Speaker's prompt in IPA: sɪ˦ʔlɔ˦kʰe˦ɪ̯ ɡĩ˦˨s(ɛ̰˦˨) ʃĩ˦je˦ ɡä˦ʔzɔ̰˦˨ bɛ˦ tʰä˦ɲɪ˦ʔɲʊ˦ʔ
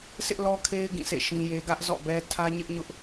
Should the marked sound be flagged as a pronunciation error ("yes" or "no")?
yes